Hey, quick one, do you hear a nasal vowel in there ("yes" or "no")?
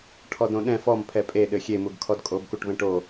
yes